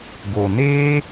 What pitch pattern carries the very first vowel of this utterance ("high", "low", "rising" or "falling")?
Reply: low